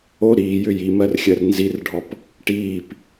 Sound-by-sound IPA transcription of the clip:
o ɾ i j ʏ j i m ɜ r xʲ ɜ r n z i r ɖʱ ɔ p | ʈ iː p

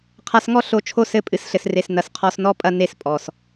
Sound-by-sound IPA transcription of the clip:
qʰ a˧ s ŋ ɔ˦ ɬ o˧ t͡ʃʰ o˦˨ s ɘ˧ pʼ ɨ˨ s ɬ ɘ˨ s r e˨ s n ɐ˨ s qʰ ɔ˧ s n ɔ˧ pʼ ɐ˧ n e˧ s pʼ ɔ˨ s

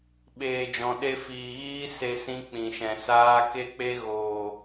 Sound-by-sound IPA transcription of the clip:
ɓ eː˨ d͡ʒ ɔ̃˨ ɗ e˧ f iː˨ ɣ iː˦ s e˧ s ĩ˧ k͡p ĩ˨ ʃ ɛ̃˨ s aː˧ k e˧ k͡p e˧ ɣ oː˨

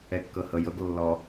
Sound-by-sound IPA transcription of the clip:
ɛ kː ɤ h ɤ j ɤ ɡ lː ɔ

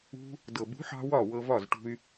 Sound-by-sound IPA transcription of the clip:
ṳ˧ | d ɤ˨ b ṳ˨˦ ħ ɑ̤˧ w ɒ˦˨ w ɤ˧ v ɒ˦˨ z ʈ ṳ˧ y̯

